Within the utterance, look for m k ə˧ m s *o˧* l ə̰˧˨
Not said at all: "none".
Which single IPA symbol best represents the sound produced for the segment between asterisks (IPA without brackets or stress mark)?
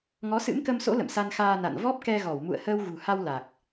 o̰˧˥